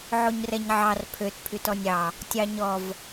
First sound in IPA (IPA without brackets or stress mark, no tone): ʕ